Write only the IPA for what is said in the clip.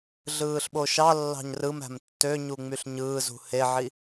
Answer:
ɮ ɯː ɬ ɓ o ʃ ɑ lː ɑ̤ ɲ r ɯ m æ̤ m tː ø ɲ u ŋ͡m y ɬ ɲ ɯː z ṳ h e ʕ i

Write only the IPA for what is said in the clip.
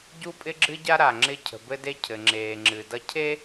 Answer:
ɟ u˦ pʼ ɪ˦ ɡ͡ǁ ɨ˦ ɟ a˦ ɾ a˨ ŋ͡ǁ ɪ˦ cʰ ə̤˨ b ɘ˦ d e˦ cʰ ɘ˨ ŋ͡ǁ eː˨ ŋ͡ǁ ɨ˨ d ʌ˦ cʰ e˦

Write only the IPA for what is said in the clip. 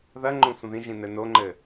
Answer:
ð ɐ ŋ͡ǃ õ sʷ ɐ̃ ð ĩ ʒ ĩ n ɘ n o ŋ͡ǃ ɘ

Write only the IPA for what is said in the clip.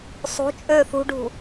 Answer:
sˤ ṳ t͡ʃʼ øː θ ṳ ɖʱ ṳ

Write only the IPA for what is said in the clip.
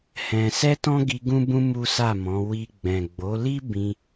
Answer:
h ɛ̃˧ s ɛ˦ t ɔ̃˦ ɡ i˧ ɡ ũ˦ b ũ˦ m u˦ s a˦˨ m ɔ̃˨˦ w i˧ ɡ͡b ɛ̃˨ ɡ͡b o˨˦ l i˦ b ĩ˧

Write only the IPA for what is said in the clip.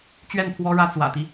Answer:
t͡ɕ ɥ ɛ˥˩ n pʰ w ɔ˥ ɻ ä˥ t͡s w ä̰˨˩ t̪ i˦

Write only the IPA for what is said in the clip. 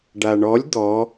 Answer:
ɖ a ɳ ɔ lʲ d̪ ɔ

